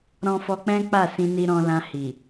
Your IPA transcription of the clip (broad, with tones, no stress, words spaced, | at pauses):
ɾɔ̃˧fɔ˧k͡pɛ̃˦ k͡pa˦˨sĩ˧ni˧ ɾɔ̃˧lã˧ hi˨